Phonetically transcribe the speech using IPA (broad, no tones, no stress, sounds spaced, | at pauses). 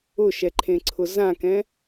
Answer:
ʊ ʃ ɛ ǃʰ ẽ ǀʰ ʊ z ã k ɛ̃